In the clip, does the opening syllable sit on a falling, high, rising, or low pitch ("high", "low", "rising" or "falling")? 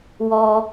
high